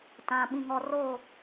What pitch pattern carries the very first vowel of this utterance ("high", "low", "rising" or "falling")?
low